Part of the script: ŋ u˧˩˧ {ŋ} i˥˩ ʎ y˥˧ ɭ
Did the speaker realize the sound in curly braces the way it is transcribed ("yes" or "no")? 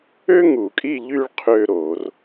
no